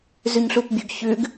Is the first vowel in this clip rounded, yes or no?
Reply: yes